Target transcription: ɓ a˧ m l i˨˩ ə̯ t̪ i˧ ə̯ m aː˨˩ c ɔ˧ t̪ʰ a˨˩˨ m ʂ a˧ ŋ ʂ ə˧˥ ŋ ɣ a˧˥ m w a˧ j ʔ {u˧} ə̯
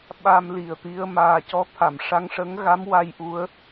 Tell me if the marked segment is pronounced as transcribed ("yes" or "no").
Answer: no